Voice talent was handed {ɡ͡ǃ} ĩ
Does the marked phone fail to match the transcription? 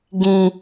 yes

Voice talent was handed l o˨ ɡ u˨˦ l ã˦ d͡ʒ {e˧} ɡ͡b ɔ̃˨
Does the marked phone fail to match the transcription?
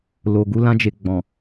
no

